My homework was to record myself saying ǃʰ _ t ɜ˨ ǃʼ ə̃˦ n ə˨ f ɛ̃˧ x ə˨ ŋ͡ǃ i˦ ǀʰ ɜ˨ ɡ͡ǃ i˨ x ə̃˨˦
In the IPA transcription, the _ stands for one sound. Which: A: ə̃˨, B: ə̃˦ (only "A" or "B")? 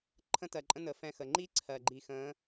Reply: B